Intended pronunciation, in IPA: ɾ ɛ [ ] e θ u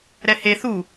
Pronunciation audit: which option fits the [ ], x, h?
h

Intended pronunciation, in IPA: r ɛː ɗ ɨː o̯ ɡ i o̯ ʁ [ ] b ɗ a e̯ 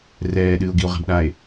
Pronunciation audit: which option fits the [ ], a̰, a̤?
a̤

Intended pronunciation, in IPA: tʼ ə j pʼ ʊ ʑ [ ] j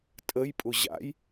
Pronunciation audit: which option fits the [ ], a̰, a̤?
a̰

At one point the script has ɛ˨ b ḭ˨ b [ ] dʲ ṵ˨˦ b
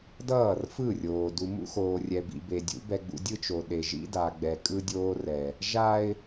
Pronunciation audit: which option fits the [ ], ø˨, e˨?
e˨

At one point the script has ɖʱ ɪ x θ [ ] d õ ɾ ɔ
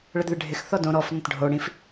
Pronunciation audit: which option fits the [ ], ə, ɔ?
ɔ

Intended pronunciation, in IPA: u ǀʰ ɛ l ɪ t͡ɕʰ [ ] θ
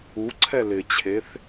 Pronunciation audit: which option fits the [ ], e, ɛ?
e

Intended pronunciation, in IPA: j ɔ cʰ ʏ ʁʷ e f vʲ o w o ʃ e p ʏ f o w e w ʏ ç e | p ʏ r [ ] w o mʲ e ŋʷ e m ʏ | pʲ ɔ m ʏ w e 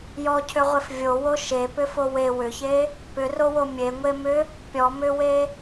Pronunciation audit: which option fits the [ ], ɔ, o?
o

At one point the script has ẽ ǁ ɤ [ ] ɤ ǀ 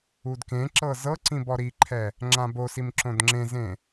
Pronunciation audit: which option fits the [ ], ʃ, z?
z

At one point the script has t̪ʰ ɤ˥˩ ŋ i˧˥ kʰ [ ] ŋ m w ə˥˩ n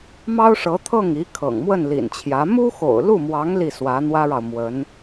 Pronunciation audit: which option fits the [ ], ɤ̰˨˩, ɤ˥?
ɤ̰˨˩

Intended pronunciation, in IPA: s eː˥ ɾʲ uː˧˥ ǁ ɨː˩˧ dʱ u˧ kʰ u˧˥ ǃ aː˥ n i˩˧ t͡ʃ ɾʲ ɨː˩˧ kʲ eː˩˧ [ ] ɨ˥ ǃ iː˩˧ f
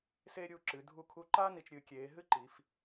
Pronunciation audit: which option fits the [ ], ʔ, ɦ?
ɦ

